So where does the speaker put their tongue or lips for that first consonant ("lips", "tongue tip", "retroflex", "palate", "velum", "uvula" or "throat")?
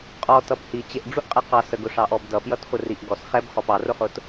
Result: uvula